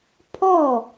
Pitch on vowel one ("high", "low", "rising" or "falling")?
falling